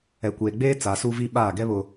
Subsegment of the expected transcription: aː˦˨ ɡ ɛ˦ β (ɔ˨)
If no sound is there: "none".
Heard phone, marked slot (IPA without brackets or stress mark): ʊ˨